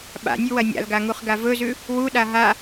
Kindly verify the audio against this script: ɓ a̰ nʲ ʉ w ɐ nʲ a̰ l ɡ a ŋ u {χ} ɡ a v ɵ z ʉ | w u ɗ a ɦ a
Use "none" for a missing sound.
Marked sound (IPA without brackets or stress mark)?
χ